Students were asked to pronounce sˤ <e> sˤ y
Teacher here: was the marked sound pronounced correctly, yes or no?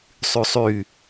no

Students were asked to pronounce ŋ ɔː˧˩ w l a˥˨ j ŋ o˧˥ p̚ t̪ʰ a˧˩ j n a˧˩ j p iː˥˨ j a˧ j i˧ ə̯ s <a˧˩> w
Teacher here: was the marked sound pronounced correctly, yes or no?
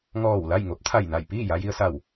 yes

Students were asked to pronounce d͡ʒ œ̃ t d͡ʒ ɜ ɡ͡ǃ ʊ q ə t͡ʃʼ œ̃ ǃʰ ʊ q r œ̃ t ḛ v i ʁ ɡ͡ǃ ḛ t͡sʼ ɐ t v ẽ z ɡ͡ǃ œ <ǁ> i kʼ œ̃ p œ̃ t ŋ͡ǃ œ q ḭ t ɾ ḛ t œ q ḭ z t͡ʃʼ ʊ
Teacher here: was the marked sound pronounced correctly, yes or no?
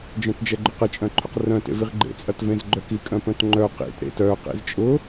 no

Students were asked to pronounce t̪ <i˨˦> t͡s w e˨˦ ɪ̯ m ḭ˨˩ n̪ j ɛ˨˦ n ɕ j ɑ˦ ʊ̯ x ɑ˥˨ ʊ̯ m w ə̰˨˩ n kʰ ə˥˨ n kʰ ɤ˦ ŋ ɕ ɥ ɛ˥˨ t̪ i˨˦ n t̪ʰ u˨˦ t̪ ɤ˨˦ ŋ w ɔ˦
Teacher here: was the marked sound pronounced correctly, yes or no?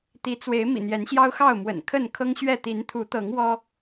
yes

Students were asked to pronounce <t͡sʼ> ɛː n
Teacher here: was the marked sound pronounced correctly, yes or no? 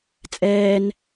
yes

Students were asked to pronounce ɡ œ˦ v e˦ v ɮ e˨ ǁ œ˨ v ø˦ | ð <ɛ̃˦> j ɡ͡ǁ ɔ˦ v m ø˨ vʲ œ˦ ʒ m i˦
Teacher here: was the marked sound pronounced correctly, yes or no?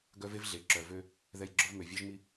no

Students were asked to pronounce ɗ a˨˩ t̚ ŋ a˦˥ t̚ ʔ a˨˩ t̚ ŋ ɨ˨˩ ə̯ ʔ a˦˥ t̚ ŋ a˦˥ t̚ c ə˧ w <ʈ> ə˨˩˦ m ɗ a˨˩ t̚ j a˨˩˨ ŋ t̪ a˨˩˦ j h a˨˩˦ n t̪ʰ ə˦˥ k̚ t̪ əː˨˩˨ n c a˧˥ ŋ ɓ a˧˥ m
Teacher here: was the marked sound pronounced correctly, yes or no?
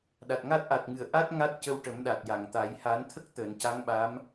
yes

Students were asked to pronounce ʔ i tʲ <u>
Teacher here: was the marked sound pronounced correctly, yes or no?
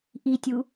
yes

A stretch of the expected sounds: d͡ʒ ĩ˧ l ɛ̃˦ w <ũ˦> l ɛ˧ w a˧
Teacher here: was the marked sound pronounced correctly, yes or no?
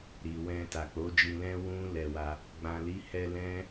yes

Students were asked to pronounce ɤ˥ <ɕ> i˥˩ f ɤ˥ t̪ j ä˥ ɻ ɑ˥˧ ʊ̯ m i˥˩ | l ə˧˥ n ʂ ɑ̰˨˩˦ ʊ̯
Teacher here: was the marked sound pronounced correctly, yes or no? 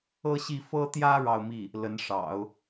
yes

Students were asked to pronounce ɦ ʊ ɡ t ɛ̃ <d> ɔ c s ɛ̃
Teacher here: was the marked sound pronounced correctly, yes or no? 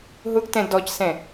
yes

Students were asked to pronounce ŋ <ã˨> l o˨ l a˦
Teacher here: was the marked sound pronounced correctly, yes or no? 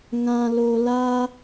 yes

